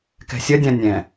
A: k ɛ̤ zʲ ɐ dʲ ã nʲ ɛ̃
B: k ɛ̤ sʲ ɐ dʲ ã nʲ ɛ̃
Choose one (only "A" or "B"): B